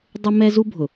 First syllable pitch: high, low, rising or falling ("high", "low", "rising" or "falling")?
high